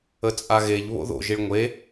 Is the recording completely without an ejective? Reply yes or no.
no